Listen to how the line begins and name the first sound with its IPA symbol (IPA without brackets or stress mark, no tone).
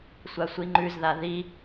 sʷ